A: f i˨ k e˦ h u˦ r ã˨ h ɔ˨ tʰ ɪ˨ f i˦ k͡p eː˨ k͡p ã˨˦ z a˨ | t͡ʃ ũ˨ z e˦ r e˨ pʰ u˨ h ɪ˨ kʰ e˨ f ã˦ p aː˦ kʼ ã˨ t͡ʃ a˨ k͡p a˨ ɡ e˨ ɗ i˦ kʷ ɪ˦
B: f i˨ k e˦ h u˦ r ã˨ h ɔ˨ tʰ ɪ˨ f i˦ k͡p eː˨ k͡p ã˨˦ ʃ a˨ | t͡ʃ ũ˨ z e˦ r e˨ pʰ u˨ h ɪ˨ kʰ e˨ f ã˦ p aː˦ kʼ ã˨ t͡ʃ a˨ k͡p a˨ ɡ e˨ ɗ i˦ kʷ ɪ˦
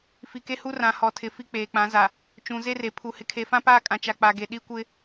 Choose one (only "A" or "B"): A